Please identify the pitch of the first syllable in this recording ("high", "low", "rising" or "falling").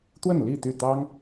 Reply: falling